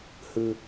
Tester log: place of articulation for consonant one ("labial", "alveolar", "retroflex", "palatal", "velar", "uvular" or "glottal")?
glottal